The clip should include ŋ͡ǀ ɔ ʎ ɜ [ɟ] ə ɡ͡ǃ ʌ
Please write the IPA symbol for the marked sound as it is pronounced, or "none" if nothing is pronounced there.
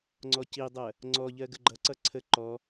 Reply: ɡ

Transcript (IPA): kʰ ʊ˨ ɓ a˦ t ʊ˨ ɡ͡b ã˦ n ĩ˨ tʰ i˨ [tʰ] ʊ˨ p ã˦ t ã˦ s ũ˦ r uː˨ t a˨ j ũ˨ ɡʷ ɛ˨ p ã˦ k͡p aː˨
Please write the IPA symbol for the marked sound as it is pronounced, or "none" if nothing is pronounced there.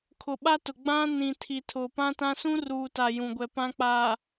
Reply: tʰ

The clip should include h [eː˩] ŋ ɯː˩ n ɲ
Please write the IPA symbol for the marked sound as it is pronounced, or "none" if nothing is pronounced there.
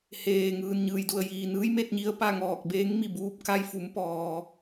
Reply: eː˩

